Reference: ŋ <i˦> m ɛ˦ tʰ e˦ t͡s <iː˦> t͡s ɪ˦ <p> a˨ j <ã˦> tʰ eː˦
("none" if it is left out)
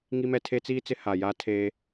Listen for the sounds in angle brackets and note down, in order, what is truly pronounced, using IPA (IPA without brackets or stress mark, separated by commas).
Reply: i˦, iː˦, h, a˦